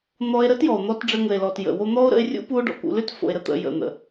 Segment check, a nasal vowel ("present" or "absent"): absent